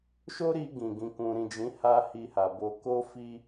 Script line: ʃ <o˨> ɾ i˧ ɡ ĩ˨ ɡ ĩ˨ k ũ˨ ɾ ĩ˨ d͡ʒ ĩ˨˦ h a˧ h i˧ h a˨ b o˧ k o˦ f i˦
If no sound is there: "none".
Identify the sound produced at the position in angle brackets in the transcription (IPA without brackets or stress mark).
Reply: o˦